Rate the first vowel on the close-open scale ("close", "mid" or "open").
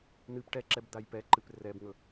close